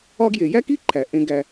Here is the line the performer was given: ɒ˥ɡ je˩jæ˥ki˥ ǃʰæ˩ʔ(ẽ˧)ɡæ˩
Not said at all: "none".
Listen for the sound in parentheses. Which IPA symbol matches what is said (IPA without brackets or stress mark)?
ẽ˧